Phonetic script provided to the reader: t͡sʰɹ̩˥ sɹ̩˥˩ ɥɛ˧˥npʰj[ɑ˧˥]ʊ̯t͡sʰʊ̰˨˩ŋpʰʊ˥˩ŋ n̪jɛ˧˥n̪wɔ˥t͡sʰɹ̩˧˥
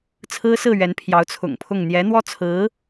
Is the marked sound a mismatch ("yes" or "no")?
no